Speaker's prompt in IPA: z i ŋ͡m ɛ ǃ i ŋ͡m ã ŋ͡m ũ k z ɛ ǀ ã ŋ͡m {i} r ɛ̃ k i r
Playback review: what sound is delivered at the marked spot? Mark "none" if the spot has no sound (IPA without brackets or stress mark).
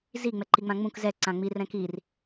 i